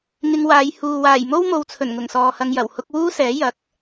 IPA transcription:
ŋ ɪ˧ ŋ w aː˨˧ j h uː˨ w aː˨˩ j m o˥ w m o˨˧ w t͡sʰ ɵ˨˩ n ŋ ʊ˨˩ ŋ s ɔː˨ h ɐ˧ ŋ j ɐ˨˩ w h ʊ˥ k̚ w uː˥ s ɛː˨˥ j ɐ˨˥ k̚

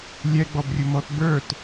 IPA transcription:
lʲ ɛ ɡ͡b ɔ b rʲ ʊ m ɔ t b ə˞ t

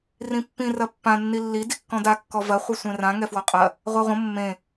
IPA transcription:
r ĩ pː ĩ r ɐ pː ã nː i lː i d i kː ɔ̃ d a kː ɔ v ɐ χʷ ɨ sʷ ẽ r ã ŋ ɛ f w ɔ qʼ ɐ | ʁʷ a ʁʷ ə̃ mː ẽ

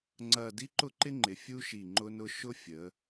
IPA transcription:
ŋ͡ǀ ɐ˥˧ d i˥ ǃ ʊ˥ ǃ ɪ˥ ŋ͡ǃ ɪ˩˧ fʲ u˥ ʃ i˧˩ ŋ͡ǃ ʊ˥ n ʊ˥ ʃ ʊ˥ fʲ ə˩˧

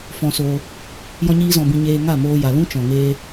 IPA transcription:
f ɔ̃˧ s oː˧ | j ɔ̃˦ ɲ iː˦ z ɔ̃˧ b ĩ˧ ɲ eː˧ ŋ a˦˨ m oː˧ j a˨ l ũ˦ t͡ʃ ɔ̃˨ ŋ eː˧

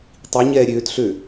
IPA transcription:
tˤ i ɲ ɛː ɾʲ øː t ɬ ø

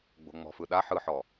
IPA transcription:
ɡ͡b o̤ ŋ͡m ɔ̤ f ɯ ɗ a ħ ɯ ħ ɔ

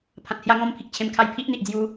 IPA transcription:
pʰ ã˨ t̚ h j a˧ ŋ ɔ̃˧ m pʰ i˨ k̚ t͡ɕʰ ẽ˧ m kʰ a˧ j pʰ i˦ ʔ n̪ i˨ ʔ d͡z j u˧

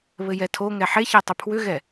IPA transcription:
β ɘ j ɛ tʰ o ŋ ɛ ħ e ç ɛ tˤ ʏ pʰ w ʏ ɣ ɛ

